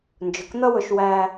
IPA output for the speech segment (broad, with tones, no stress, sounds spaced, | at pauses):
n d͡ʒ ʊ˨ k n̪ ʌ˦ w ʊ˧ ʃ w æ˦